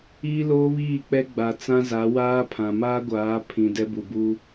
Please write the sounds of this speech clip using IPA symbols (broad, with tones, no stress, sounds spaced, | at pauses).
iː˦ l oː˦ β iː˦˨ k͡p ɛ˦ ɡ͡b a˨ t͡s ã˦ z a˨˦ w aː˦ pʰ ã˨ m aː˦ ɡʷ aː˨˦ pʰ ĩ˨ d ɛ˦ b u˨ b uː˦